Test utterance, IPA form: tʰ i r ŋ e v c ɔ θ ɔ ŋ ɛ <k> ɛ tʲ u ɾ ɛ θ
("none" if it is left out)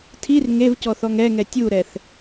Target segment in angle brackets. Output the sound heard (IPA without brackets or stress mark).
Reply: ŋ